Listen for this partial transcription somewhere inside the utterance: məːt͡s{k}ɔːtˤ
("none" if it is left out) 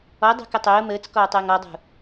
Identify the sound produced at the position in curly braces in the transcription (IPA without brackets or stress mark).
k